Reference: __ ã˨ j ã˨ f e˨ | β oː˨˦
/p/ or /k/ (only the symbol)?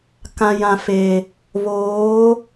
k